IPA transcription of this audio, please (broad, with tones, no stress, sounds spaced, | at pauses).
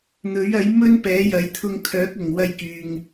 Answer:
n̪ ɵ˨˥ ɥ ɐ˨˥ j m ɵ˥ n p ɛː˨˥ j ɐ˨˥ j t̪ʰ ʊ˧ ŋ kʰ œː˨˥ k̚ ʊ˨˩ ŋ w ɐ˧ j k yː˨ ŋ